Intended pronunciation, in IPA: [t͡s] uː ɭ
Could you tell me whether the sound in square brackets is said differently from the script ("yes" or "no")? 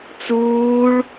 no